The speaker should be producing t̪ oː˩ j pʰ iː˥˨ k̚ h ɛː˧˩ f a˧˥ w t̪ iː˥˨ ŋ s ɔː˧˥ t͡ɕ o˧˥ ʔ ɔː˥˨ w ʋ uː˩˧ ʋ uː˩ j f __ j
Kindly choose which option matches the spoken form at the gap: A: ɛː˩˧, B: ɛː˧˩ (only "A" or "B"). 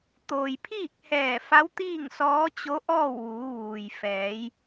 A